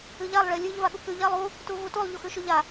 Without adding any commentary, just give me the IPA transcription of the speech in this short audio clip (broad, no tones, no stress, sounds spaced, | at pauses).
ɨ ʎ a lˠ ɭ e lʲ ʉ ʎ v a ɠ u k ʉ ʎ a lˠ u | t u v u t u lˠ ʎ u x ʉ ʃ ʉ ʎ a